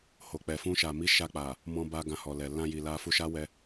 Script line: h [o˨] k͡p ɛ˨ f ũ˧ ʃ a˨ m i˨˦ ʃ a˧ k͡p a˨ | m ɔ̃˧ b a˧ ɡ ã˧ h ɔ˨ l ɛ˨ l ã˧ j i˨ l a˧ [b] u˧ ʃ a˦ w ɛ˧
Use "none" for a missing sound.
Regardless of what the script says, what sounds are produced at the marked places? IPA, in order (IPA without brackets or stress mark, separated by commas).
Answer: o˨, f